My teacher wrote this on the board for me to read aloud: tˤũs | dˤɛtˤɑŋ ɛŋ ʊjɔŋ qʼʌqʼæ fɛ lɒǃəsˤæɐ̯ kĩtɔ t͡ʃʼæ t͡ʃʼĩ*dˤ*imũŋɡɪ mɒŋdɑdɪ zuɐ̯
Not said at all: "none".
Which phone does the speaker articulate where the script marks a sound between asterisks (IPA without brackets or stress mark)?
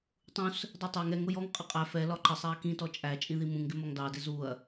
ð